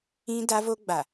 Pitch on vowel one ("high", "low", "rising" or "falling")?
high